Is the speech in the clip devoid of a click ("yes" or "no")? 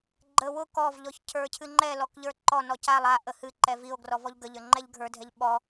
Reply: no